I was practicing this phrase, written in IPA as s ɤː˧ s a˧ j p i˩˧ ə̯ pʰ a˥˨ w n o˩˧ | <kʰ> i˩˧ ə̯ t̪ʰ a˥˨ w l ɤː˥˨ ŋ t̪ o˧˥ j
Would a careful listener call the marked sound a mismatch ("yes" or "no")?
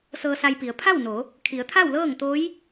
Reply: no